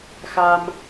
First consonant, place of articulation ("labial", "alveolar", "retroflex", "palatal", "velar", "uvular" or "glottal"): velar